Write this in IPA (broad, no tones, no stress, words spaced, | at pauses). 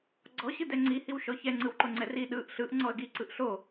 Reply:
ɡ͡ǀɔɕɯdɛ ŋ͡ǀi hiwʃɔçɛ ŋ͡ǀɯwǃoŋ͡ǀɛri ɗɯʔ ɬɯʔŋ͡ǀɔə̯ ɡiǀɯʔ ɬo